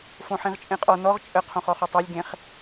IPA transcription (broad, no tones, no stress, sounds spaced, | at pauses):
f õ ħ ĩ ʁ t͡ʃʼ ẽ qʼ ɔ n ɔ ʁ t͡ʃʼ ə qʰ õ χ ɔ χ o tˤ a lʲ ɡ ẽ χ